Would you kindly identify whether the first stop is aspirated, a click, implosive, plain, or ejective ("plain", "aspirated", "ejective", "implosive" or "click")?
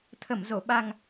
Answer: aspirated